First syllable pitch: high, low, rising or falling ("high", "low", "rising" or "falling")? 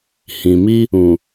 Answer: low